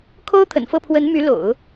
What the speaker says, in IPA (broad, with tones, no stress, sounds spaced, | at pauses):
kʰ o˥ ʊ̯ t̪ʰ ə̰˨˩ n f ɤ˥˩ pʰ w ə˧˥ n m y˧˥ l o̰˨˩˦ ʊ̯